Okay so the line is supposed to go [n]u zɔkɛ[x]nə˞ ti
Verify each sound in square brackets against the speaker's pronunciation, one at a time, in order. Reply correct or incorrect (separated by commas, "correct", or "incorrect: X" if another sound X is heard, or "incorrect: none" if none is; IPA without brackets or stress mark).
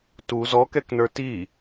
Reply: incorrect: t, incorrect: k